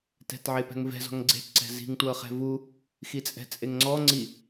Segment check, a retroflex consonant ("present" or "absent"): absent